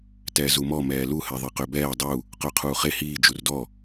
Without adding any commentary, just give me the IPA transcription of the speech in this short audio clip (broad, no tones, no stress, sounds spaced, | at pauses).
t ɛː z u m ɔ m ɛː l u h ɛ ðˤ i q ø b ɛː dˤ u | q œ qʰ uː χ e h iː d͡ʒ u r d ɔ